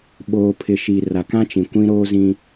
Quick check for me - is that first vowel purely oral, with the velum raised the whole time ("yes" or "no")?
yes